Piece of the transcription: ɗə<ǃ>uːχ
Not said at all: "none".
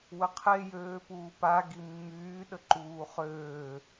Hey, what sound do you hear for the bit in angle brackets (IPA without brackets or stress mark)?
ǃ